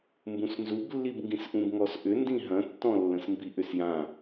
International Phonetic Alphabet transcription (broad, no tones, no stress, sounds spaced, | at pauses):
m b ũ s n z u b lː i b ŋ ɡ ĩ s ʔ ũ b ŋ ɔ s ʔ ʏ n d ĩ ɦ ɐ̃ tː ɔ̃ lː ə̃ s m b i ʔ ʏ s j ã